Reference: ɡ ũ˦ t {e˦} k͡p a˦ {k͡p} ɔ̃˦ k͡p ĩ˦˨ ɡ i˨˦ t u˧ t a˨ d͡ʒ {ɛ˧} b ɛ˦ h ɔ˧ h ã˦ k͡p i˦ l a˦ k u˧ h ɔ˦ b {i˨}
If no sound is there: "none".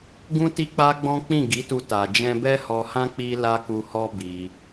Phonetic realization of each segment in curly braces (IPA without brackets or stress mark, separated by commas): i˦, ɡ͡b, ɛ̃˧, i˧